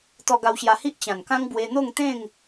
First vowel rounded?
yes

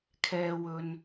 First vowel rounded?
no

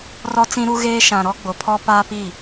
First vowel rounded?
yes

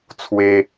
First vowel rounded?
no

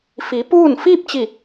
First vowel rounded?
no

